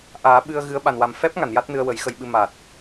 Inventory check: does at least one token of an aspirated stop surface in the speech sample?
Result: no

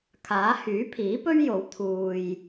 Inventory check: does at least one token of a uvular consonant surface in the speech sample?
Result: no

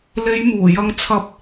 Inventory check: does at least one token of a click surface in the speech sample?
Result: no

